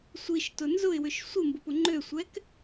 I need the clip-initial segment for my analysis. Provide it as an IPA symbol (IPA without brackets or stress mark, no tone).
sʷ